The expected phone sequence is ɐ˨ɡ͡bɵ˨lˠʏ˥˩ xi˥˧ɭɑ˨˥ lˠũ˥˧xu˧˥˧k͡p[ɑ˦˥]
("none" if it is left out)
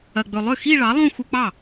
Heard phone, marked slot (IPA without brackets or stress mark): ɑ˥˩